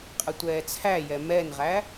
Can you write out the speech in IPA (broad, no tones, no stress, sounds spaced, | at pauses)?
qʼ ə tʷ ɛː t͡sʰ æ j ɛ m ɛ n ʁ æ